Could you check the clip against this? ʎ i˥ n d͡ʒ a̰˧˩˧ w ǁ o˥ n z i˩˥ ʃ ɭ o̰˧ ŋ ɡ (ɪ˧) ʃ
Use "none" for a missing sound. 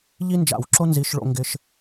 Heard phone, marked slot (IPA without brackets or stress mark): ɪ˧